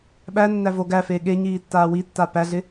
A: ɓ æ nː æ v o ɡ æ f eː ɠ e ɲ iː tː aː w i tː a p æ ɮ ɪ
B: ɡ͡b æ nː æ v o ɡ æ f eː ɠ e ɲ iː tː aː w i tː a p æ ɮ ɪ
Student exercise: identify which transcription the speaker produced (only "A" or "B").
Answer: A